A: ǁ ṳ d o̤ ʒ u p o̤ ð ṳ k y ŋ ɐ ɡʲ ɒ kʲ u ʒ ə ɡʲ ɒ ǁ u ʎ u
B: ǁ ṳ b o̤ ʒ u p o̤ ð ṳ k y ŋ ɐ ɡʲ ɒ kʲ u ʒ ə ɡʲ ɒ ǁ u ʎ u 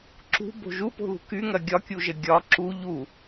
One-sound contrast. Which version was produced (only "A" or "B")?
B